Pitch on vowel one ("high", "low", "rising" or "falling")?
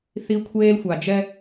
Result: high